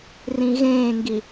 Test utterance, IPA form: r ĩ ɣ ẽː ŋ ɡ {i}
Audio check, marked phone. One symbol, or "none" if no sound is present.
i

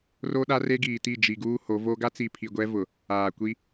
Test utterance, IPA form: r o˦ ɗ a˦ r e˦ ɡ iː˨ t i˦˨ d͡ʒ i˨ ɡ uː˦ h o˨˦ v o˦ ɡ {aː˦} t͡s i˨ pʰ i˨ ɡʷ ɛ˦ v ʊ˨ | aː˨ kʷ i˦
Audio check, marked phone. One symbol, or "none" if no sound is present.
a˦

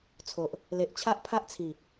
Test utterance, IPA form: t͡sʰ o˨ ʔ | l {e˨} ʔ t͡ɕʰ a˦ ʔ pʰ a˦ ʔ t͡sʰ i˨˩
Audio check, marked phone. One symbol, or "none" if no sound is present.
e˨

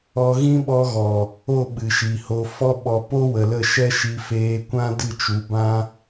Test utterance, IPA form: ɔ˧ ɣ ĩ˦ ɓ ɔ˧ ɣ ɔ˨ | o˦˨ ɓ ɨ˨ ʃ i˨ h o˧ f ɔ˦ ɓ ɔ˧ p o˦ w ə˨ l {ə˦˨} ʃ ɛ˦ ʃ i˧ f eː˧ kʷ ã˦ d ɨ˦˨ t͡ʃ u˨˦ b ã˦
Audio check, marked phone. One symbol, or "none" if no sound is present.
ə˦˨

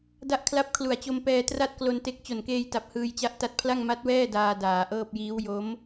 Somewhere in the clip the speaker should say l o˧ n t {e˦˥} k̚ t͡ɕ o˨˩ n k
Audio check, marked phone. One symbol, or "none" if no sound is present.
e˦˥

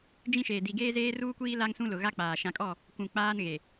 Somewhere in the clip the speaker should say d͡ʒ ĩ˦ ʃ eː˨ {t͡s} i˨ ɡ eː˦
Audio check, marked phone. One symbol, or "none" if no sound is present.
d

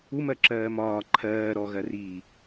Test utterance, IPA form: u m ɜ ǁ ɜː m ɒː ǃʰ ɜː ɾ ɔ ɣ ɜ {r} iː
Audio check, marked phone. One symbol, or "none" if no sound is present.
r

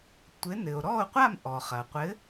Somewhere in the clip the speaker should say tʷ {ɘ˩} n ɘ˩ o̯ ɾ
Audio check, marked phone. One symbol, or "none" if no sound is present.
ɘ˨˥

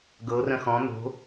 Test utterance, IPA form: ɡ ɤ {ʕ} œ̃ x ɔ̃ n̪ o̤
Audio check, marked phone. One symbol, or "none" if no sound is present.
r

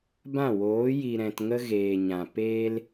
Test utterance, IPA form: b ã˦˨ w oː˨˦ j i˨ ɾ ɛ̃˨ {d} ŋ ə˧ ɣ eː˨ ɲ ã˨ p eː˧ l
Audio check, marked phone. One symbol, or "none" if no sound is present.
t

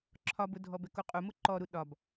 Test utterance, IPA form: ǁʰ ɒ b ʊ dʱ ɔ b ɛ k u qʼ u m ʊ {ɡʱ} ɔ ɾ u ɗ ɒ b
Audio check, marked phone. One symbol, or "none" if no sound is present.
ǃ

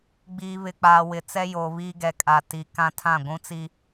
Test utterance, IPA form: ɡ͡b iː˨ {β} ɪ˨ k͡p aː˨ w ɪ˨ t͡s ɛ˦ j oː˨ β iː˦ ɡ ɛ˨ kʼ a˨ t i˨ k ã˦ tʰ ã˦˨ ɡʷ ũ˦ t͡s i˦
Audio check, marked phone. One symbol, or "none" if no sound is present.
β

